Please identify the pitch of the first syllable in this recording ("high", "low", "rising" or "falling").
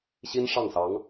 high